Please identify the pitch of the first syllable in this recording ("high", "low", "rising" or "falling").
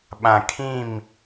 low